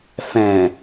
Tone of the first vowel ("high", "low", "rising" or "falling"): low